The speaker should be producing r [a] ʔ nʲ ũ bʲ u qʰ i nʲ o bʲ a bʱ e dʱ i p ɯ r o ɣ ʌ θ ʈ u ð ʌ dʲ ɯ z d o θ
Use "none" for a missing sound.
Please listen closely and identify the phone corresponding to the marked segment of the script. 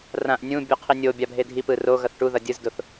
ã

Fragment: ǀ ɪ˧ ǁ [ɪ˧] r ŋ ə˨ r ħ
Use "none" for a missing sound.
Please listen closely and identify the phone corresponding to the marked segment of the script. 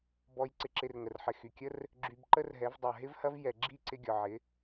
ɪ˧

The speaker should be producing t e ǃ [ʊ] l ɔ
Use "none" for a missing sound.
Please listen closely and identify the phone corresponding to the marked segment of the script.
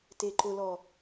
ʊ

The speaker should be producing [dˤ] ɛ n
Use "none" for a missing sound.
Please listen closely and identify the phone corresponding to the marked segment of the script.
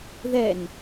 ð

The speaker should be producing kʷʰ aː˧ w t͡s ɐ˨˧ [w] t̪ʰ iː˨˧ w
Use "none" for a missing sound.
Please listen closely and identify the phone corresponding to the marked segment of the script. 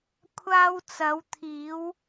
w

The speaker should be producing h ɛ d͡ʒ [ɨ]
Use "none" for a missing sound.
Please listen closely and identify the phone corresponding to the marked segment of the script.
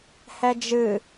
ɨ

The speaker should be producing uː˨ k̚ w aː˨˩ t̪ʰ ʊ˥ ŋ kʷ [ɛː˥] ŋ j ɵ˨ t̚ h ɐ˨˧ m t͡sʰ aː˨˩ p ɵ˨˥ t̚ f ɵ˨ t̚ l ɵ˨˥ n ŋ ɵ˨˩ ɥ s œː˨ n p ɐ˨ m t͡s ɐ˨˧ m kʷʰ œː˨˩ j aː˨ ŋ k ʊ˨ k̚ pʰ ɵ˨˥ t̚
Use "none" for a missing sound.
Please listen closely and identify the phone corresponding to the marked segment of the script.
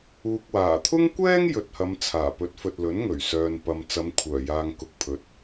ɛː˥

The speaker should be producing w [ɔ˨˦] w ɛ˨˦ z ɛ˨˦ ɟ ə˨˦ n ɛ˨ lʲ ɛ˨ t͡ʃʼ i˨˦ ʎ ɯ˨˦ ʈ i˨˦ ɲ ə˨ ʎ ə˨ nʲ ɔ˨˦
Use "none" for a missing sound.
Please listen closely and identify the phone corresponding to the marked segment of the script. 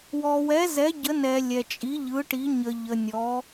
ɔ˨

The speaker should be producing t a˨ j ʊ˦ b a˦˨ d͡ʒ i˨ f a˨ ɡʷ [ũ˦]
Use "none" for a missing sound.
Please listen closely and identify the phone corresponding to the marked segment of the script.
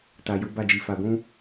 ũ˦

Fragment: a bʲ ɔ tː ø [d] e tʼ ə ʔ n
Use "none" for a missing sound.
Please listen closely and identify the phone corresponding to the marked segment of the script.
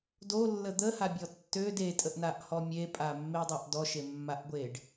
d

